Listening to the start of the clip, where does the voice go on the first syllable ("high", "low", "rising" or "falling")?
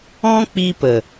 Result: high